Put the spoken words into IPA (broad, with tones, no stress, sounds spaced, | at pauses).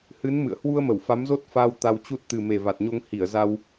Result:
h ɨ˨˦ n m ɨ̰˧˨ ə̯ h w u˧ ə̯ m ə˧˩ w f a˨˦ m z o˦˥ t̚ f aː˧ w t̪ a˧ w t͡ɕ u˦˥ t̚ t̪ ɨ˨˩ m e˨˩ v a˨˩ t̚ ɲ o˧ ŋ h i˧˩ ə̯ z a˧ w